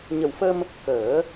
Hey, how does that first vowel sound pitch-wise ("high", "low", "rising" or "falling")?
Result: low